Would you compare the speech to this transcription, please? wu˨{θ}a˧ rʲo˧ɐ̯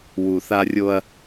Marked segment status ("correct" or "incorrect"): correct